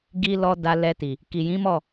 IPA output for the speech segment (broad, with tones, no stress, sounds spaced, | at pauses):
ɡ i˦ l ɔ˦ d a˧ l ɛ˧ t i˨ | k i˨ j ĩ˨˦ m ɔ˦˨